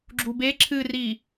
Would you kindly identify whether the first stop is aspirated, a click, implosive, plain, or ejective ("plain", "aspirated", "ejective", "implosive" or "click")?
click